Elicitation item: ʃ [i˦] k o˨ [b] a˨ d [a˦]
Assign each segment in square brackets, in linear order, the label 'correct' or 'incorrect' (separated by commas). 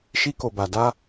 correct, correct, correct